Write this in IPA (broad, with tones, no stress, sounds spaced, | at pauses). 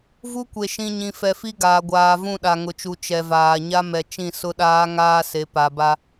v u˦ kʷ e˨ ʃ ĩ˨ ɲ ĩ˨ f ɛ˨ f i˦ ɡ aː˨ ɡʷ aː˨ v ũ˦˨ ɗ a˨ ŋ ʊ˨ t͡ʃ u˨ t͡ʃ ɛ˨ v aː˨ ɲ a˦ m ɛ˨ t͡ʃ ĩ˦˨ s ʊ˦ ɗ aː˦ ŋ aː˦ s e˨˦ p a˨ b a˦